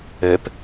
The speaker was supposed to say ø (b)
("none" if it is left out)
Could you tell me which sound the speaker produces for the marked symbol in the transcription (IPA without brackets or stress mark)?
p